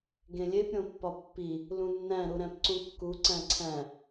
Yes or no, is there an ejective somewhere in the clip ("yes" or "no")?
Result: no